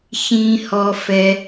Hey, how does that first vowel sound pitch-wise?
low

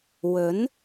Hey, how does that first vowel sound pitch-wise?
rising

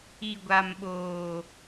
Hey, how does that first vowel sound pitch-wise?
low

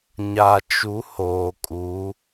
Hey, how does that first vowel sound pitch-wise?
low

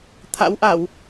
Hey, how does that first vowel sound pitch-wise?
rising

